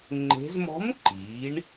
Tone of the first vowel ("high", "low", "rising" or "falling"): rising